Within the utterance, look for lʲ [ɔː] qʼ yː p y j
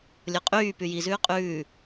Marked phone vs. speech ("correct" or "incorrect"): incorrect